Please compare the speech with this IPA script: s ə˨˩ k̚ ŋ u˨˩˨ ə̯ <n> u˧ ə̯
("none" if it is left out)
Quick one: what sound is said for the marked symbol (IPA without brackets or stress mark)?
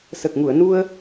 n